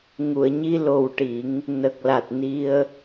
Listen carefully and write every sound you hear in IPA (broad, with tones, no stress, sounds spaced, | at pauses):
ŋ u˨˩˨ ə̯ ɲ i˧ l o˨˩ w ʈ i˨˩˦ ŋ | n ə˨˩ k̚ l a˨˩ t̚ n i˧ ə̯